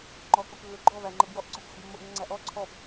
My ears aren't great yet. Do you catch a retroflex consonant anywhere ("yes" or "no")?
no